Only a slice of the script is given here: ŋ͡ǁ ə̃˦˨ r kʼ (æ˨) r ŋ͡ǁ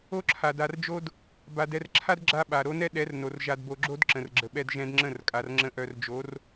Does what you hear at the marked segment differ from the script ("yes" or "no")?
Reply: yes